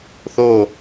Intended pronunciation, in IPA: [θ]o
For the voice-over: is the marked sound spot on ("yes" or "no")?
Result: yes